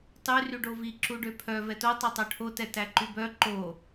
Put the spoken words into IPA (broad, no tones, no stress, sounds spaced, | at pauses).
tˤ y r y ɖ o v i ǁ u ɖ ø pʰ œ v ɛ t o tˤ ø tˤ œ ʈʰ o t ɛ t æ ǃ y b œ ǃ o